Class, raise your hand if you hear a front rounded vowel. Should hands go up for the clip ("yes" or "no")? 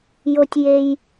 no